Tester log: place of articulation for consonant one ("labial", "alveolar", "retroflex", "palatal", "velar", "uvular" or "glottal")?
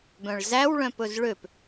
labial